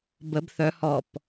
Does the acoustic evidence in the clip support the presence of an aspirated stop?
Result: no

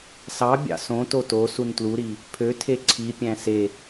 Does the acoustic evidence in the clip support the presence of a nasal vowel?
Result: yes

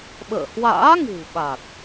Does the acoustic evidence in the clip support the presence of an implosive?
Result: yes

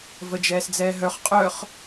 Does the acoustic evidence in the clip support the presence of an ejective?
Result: yes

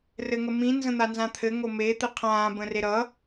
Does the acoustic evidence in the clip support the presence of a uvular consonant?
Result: yes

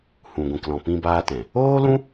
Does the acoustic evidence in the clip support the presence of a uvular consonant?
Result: no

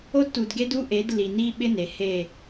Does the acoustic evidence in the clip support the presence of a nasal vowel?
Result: no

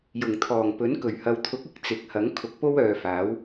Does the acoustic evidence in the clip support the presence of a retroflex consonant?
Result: no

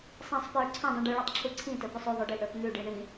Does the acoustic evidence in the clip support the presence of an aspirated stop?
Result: yes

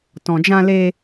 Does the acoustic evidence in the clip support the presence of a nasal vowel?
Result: yes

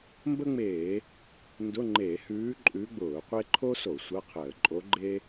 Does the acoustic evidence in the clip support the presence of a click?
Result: yes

